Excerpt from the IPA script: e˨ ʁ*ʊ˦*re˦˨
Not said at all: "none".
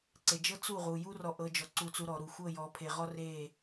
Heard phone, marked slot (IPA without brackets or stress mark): ɔ˦